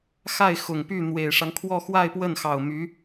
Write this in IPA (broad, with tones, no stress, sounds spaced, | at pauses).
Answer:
x a˥˩ ɪ̯ x ʊ˨˩ ŋ p y˥˩ n̪ w e˨˩ ɪ̯ ʂ ɑ˦ ŋ kʰ w ɔ˥˧ x w a˥˧ ɪ̯ p w ə˥˩ n x ɑ˨˩ ʊ̯ m y˧˥